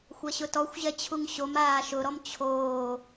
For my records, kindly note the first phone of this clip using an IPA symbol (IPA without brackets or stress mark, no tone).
xʷ